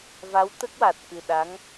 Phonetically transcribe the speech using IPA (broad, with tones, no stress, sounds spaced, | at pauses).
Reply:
v a˧˥ w t̪ ə˦˥ k̚ w a˨˩ t̚ k ɨ˨˩ ɗ a˧˥ ŋ